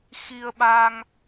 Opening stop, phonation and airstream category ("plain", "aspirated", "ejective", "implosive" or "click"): implosive